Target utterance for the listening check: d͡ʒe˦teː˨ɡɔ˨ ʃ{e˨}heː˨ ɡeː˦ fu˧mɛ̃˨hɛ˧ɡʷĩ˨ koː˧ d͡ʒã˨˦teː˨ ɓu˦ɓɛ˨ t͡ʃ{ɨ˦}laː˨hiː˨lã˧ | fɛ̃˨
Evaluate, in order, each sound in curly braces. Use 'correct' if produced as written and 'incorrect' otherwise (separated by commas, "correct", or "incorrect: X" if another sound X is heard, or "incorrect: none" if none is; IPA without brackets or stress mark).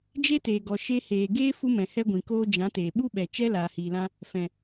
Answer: incorrect: e˧, incorrect: ɛ˦